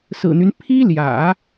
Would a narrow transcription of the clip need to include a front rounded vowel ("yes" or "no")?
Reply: yes